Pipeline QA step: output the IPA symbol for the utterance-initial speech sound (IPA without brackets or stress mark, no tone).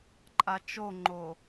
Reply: ǃʼ